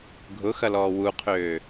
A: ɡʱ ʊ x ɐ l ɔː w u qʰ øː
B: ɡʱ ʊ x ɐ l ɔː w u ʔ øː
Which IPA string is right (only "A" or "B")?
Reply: A